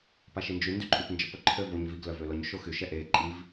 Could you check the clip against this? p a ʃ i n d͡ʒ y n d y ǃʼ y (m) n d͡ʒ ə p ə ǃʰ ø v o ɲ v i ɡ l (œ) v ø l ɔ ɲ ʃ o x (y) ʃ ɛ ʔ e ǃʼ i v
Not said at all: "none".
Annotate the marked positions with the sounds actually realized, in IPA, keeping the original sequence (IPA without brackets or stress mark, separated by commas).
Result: p, œ, y